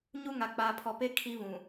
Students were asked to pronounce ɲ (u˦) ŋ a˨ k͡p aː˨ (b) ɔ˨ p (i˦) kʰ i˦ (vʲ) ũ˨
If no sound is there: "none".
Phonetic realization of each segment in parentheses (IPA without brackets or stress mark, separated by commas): u˦, pʰ, e˦, v